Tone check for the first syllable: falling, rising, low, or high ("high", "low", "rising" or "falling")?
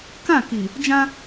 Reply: falling